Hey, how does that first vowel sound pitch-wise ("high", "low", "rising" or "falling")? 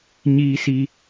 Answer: high